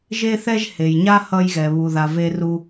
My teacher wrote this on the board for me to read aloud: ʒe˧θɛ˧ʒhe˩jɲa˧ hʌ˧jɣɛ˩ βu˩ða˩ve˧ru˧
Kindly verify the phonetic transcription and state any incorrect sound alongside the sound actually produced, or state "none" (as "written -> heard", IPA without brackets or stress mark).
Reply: none